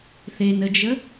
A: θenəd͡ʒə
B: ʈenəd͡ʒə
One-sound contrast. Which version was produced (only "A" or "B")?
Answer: A